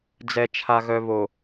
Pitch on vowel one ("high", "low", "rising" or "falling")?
low